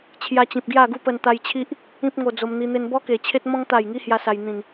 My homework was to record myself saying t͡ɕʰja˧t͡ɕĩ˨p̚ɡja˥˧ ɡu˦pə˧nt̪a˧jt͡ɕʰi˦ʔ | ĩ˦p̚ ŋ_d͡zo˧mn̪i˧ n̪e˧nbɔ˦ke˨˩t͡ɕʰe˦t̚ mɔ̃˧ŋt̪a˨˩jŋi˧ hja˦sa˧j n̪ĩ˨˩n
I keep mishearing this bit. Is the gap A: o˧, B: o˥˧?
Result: A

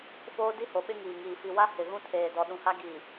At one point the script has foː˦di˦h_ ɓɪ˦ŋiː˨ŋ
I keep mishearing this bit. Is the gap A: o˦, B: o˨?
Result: B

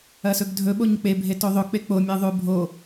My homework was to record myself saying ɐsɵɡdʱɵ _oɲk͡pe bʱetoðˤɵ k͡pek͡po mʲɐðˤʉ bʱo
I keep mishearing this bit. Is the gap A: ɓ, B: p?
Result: A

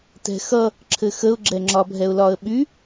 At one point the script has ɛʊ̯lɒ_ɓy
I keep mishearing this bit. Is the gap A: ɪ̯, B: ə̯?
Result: B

